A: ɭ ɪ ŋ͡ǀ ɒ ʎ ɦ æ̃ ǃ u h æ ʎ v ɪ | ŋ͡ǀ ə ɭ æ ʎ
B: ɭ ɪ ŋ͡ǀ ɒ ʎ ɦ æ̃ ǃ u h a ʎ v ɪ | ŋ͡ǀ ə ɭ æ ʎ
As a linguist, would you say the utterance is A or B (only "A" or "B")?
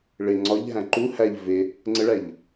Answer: A